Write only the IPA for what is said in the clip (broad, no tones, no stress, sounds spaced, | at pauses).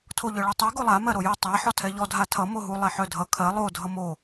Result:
tʰ o ʎ œ ɭ ɛ tˤ ɛ ɡ o lˠ a m ɜ ɾ o j ɛ tˤ a ħ ɔ tʰ ɛ ʎ ɔ dʱ a tʰ ʌ m o ɦ u lˠ ɛ ħ œ dʱ ʌ kʰ ɜ lˠ o dʱ ʌ m o